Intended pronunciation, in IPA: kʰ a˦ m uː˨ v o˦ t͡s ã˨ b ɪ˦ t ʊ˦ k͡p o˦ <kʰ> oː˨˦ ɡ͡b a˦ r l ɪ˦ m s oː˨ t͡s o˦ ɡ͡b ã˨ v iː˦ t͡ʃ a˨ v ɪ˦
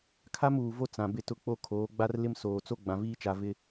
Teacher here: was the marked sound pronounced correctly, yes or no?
yes